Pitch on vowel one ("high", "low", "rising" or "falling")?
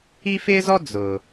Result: high